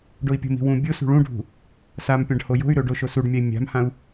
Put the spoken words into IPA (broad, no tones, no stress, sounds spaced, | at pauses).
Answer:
ɖ o i̯ pʲ o̤ m i̤ w ũ bʲ o s ṳ ɭ ũ ɖʱ ṳ | s a m pʲ ã ɖ h o j o̤ y̯ ɾ ɵ ɖ o ʃ o s u ɖ mʲ a i̯ mʲ a̤ m h ã u̯